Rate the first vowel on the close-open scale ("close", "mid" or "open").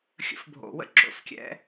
mid